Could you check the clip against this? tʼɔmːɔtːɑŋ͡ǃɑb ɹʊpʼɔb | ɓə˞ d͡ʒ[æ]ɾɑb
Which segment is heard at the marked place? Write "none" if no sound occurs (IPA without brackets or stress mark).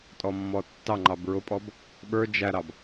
æ